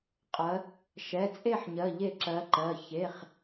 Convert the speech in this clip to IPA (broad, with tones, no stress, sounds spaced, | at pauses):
qʼ ɜ˩˧ | ʃ ɛ˩˧˩ t͡sʼ e˥˨ ħ ɲ ɜ˩˧˩ ʎ e˧˩ ǁ ɜ˩˧ ǃ ɜ˩˧˩ ç e˩˧˩ χ